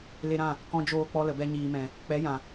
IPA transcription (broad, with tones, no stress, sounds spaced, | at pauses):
l e˧ ɾ ã˦˨ | k ɔ̃˧ d͡ʒ oː˧ k͡p ɔ˧ l ə˨ b ɛ˧ ɲ iː˨ m ɛ̃˨ | k͡p ɛ˨˦ j ã˨